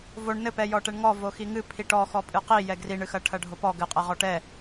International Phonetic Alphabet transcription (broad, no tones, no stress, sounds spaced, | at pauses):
v o ɳ n ɘ p ɛ j ɔ ʈ ɛ ɳ ŋ ɔ v o x i ŋ ɨ pʰ i ʈ ɔ x ɔ pʼ ɨ q i j ɛ ɡ r i ɳ ɨ x ɐ ʈʰ ɐ ɖʱ o p ɔ ɡ ɘ qʼ ɛ ʁ ɔ ʈ ɛ